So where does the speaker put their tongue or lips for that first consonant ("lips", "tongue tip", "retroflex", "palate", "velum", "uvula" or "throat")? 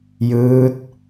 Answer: palate